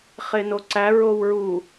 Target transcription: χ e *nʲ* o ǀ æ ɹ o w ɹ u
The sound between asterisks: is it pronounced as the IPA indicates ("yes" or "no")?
no